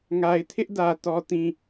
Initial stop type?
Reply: aspirated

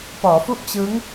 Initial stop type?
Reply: plain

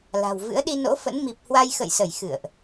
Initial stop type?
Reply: implosive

